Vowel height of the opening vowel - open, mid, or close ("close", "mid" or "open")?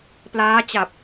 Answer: open